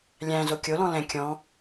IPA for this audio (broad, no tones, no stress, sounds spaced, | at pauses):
lʲ æ̃ z o kʲ o l ɔ̃ l ɛ̃ kʲ ɔ̃